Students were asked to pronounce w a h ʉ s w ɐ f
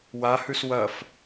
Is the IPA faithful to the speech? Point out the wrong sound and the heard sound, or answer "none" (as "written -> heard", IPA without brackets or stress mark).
none